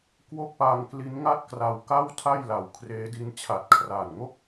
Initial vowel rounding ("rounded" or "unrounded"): rounded